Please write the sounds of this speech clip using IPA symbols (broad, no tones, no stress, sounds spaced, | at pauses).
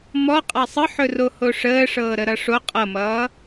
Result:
m ɔ qʼ a sˤ ə ħ ɵ r o h o ʂ əː ʂ ɤː ɾ ə ɾ ʌ ʂ o qʼ ʌ m ʌː